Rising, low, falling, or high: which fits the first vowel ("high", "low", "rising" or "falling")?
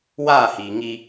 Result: falling